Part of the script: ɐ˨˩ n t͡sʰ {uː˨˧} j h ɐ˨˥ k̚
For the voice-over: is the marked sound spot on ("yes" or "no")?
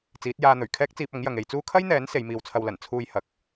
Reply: no